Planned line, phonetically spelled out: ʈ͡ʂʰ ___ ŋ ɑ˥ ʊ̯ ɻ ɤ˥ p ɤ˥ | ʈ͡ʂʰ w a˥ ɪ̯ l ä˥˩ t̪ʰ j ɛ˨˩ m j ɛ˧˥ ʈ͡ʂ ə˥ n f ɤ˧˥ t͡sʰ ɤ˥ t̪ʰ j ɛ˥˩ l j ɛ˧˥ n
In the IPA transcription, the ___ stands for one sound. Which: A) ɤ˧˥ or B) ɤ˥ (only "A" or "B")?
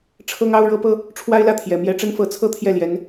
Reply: B